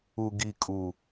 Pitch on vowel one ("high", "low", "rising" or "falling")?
low